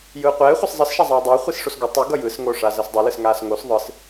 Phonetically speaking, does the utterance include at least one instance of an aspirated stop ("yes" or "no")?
no